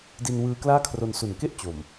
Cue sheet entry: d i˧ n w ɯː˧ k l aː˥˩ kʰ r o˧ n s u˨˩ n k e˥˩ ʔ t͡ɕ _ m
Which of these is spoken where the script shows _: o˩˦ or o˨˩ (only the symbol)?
o˨˩